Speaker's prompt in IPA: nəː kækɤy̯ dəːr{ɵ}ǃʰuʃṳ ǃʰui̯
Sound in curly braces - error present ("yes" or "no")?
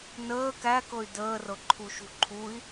yes